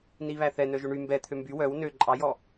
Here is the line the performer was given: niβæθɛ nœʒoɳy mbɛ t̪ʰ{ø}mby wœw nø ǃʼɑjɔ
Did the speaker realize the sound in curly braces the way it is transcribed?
yes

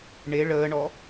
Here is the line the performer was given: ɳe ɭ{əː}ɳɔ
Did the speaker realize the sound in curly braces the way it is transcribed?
yes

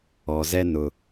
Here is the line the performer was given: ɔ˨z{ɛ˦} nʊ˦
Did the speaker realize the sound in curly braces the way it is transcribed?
yes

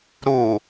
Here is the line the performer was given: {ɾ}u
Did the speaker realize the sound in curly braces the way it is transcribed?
yes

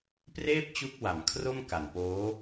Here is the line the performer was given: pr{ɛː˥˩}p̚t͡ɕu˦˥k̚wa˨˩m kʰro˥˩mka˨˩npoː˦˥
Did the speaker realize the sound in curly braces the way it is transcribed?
no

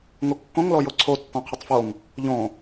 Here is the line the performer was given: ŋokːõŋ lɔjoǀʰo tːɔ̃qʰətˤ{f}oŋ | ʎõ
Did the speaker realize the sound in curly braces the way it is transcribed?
yes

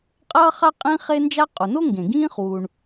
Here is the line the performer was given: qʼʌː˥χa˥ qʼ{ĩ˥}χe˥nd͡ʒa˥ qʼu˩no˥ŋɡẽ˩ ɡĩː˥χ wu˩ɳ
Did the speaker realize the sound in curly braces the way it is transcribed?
yes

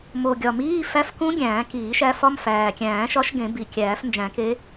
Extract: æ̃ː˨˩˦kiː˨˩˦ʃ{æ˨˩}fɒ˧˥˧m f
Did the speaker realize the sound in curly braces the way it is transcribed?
no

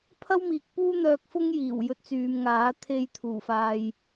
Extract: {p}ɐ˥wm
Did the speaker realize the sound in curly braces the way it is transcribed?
no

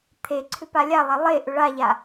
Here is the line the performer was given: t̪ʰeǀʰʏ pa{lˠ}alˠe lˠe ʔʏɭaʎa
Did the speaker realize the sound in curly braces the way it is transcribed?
no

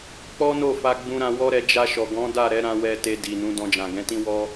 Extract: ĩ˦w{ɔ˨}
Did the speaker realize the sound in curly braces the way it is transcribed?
no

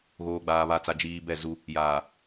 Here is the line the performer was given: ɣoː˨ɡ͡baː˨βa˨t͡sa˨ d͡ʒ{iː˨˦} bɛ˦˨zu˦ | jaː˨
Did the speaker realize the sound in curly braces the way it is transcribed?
no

